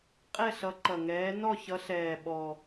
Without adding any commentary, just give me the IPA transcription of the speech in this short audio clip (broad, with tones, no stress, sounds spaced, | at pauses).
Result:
qʼ ɛ˥˧ ɬ ʌ˨˦ ǃ ʌ˨˩ ŋ ɛː˨˦ n ɔ˥˧ ç ʌ˨˦ ɬ ɛː˨˩ ɓ ɔ˨˩